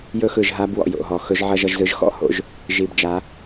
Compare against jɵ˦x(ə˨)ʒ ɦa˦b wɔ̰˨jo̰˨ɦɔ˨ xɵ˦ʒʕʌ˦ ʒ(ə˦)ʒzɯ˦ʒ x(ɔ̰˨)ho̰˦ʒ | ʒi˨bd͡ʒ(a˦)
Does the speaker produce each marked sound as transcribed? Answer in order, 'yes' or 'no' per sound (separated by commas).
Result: no, no, no, no